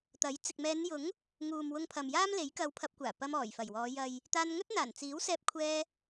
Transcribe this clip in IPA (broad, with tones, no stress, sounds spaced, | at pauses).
t̪ ɐ˨˥ j t͡s ɪ˨ k̚ m ɛː˨˧ n j ʊ˨˥ ŋ | ŋ uː˨ m w ʊ˧ ŋ pʰ ɐ˨ m j aː˥ m l e˨˥ j k ɐ˧ w pʰ ɐ˧ p̚ kʷ aː˨˩ p ɐ˧ m ɔː˨˩ j f ɐ˨˩ j w ɔː˨˧ j ɐ˨ j | t̪ aː˧ n ŋ ɵ˥ t̚ n̪ aː˨˩ n t͡s iː˨˥ w s ɛː˧ p̚ kʷʰ ɛː˧